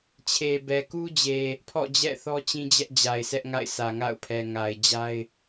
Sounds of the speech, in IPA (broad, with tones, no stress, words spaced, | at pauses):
t͡ɕʰe˨bɛ˨ku˦d͡ʑe˨ | pʰɔ̰˦˨d͡ʑɛ̰˦˨ θɔ˦t͡ɕĩ˦d͡ʑɛ˦ʔ d͡ʑa˨ɪ̯sʰɛ˦ʔŋa̰˦˨ɪ̯sʰä˨ ŋa̰˦˨ʊ̯pʰɛ˨ ŋa˨ɪ̯d͡ʑa˦ɪ̯